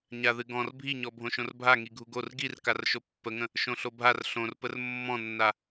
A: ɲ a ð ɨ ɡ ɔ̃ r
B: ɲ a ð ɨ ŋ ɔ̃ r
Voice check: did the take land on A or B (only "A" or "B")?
A